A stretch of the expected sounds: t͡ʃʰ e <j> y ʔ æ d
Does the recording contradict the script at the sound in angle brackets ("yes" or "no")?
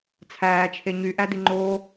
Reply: yes